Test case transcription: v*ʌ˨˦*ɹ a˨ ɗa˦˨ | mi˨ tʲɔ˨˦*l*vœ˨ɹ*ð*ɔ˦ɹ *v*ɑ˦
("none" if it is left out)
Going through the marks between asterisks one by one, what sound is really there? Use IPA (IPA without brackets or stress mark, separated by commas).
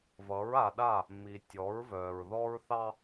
ʌ˨˦, ɹ, ð, θ